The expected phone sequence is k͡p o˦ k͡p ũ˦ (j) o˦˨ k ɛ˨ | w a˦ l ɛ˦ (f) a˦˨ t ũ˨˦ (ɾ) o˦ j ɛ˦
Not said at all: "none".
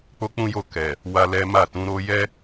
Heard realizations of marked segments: j, m, ɾ

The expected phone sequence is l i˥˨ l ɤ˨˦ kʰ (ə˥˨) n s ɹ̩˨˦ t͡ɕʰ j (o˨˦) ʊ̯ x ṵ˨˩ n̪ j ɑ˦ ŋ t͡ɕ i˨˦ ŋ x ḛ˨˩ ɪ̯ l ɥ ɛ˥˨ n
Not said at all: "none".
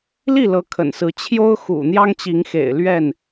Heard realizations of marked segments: ə̰˨˩, o˦

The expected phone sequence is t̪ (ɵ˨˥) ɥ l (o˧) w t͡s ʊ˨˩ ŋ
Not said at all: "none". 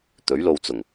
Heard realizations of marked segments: ɵ˨˥, o˧

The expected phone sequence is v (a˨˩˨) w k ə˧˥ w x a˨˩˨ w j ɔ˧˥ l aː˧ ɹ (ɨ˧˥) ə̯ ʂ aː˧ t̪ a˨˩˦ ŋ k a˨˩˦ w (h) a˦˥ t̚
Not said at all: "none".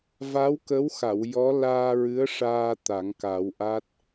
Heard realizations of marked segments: a˧˥, ɨ˧˥, ʔ

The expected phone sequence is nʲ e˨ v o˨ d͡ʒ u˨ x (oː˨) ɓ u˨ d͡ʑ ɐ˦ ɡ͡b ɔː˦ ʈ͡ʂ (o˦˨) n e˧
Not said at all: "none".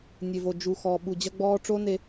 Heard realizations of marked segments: ɔː˨, o˦

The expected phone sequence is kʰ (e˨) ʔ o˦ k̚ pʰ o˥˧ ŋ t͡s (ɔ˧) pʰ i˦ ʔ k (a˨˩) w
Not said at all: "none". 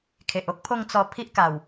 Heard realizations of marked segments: e˨, ɔ˧, a˨˩

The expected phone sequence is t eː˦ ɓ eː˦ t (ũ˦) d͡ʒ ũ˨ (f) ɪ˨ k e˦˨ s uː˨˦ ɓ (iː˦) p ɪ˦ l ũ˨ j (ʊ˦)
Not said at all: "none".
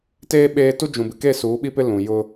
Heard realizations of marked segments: u˦, b, i˦, ʊ˦

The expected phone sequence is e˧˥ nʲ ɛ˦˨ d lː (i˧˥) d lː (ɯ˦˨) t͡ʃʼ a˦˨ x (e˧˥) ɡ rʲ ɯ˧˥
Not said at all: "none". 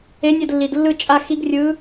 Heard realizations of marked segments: i˨, ɯ˦˨, i˧˥

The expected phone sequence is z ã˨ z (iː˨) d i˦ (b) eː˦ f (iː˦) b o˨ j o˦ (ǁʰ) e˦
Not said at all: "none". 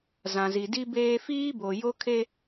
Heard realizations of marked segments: i˨, b, iː˦, kʰ

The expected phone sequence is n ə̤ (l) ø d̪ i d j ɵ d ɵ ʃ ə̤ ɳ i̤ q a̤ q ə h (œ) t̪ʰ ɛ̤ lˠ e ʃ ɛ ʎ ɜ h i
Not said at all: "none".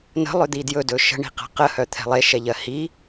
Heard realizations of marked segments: lˠ, œ

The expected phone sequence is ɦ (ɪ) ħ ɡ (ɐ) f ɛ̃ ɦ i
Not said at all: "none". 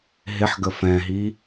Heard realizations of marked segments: ɪ, ə

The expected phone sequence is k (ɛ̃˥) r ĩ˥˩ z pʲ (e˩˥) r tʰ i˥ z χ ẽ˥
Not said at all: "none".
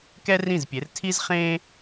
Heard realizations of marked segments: ɛ˥, e˩˥

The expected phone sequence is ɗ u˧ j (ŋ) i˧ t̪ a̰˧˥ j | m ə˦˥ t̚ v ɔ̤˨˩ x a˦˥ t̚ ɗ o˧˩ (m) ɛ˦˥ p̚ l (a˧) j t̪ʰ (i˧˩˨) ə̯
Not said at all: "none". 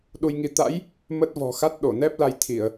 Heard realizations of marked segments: ŋ, n, a˧, i˧˩˨

